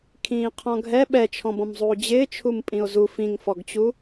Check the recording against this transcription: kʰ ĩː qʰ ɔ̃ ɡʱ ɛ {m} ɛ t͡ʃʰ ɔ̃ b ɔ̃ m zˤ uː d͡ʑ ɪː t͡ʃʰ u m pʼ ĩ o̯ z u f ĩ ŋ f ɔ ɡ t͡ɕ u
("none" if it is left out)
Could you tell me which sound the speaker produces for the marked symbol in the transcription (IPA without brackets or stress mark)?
ɓ